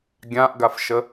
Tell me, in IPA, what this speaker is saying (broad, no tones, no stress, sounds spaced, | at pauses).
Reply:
ɡʲ ã ʔ ɡ a f ʃ ə